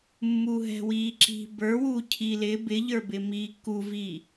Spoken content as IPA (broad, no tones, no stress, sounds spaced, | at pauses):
mː u ɦ ɛ̤ w iː ǁ i̤ b ə˞ w uː cʰ i l ɪ b ɪ ʎ ə˞ b ɪ m iː k u v i